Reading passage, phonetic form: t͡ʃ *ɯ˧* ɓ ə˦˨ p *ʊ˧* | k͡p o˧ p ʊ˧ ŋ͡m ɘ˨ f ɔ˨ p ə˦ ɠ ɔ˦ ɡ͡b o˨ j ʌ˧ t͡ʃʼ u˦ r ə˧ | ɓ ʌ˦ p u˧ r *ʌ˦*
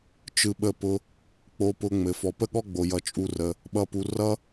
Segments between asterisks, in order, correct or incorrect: correct, correct, correct

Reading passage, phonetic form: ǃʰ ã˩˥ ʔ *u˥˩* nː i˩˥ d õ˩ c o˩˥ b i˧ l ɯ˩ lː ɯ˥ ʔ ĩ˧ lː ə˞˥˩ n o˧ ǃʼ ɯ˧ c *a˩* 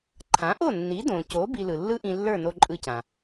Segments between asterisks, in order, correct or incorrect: incorrect: o˥˩, incorrect: ã˩

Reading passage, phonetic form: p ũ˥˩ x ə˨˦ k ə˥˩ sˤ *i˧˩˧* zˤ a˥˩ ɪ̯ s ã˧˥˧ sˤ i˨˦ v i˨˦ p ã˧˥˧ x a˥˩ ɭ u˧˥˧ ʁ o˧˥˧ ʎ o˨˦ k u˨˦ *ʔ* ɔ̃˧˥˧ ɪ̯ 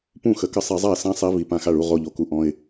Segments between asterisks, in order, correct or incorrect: correct, correct

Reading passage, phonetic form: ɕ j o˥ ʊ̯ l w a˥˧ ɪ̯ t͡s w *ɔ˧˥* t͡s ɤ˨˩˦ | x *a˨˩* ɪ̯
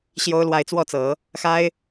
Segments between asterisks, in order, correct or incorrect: incorrect: ɔ˥˩, incorrect: a˥

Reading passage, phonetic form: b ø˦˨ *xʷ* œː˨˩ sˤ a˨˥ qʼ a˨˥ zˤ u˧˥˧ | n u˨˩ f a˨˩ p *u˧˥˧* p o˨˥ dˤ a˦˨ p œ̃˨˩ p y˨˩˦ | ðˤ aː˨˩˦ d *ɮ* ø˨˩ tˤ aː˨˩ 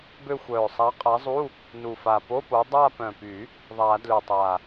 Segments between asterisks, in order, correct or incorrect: correct, incorrect: o˧˥˧, incorrect: l

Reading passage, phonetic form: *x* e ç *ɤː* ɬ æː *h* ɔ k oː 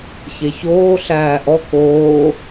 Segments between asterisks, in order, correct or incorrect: incorrect: ç, incorrect: oː, incorrect: ʔ

